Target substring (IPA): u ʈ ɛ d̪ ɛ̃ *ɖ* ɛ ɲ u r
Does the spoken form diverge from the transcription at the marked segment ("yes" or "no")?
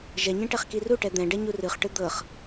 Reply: no